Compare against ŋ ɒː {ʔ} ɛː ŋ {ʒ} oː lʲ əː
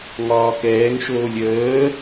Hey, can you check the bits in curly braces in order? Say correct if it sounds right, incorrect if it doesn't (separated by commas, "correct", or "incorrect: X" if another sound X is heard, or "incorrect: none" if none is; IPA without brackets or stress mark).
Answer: incorrect: k, incorrect: ʃ